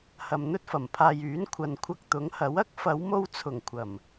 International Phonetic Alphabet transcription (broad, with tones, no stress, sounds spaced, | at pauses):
h ɐ˨ m n̪ ɵ˥ t̚ f ɐ˨˩ m pʰ aː˨ j yː˨˥ n kʷʰ ɐ˨ n kʷʰ ɐ˧ k̚ t̪ ʊ˨˥ ŋ h ɐ˨˥ w ɐ˥ k̚ f ɐ˨˧ w m o˧ w t͡sʰ ʊ˨˩ ŋ kʷʰ ɐ˨˩ m